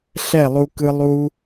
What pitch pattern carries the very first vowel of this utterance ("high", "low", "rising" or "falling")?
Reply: falling